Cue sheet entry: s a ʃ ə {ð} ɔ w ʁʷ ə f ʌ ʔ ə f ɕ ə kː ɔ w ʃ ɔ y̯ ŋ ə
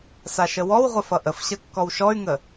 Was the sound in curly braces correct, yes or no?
no